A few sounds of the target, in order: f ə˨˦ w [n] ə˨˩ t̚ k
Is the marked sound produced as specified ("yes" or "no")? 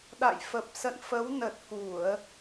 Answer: yes